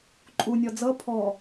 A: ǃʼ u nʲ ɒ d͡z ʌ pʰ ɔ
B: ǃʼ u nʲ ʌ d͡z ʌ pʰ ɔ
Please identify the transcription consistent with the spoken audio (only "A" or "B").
A